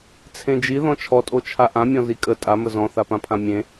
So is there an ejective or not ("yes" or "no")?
yes